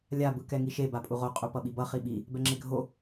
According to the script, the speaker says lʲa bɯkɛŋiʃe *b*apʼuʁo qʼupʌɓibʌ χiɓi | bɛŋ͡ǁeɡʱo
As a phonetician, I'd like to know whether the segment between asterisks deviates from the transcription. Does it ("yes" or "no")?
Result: no